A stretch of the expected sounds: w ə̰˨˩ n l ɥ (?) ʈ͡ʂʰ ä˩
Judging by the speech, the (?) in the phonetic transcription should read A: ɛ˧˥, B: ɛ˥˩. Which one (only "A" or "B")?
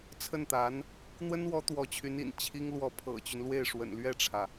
B